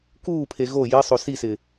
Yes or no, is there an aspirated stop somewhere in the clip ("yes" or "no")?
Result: yes